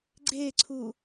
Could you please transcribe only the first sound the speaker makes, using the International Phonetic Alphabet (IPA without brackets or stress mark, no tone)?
ɡ͡ǀ